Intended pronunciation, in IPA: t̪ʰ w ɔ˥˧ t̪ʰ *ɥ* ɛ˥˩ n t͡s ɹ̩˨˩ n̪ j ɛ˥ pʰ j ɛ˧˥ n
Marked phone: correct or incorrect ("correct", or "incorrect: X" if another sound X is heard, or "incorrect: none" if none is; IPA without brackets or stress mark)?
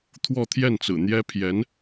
incorrect: j